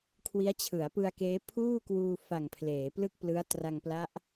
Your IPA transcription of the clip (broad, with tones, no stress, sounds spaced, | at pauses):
kʰ w i˦˥ a̯ t͡ɕʰ ɯ˩˦ a̯ p ɯ˧ a̯ k eː˦˥ pʰ uː˥˩ k w uː˧ f a˨˩ ŋ pʰ l eː˩˦ p l ɯ˥˩ k̚ p l ɯ˦˥ a̯ t r a˧ ŋ p l a˦˥ ʔ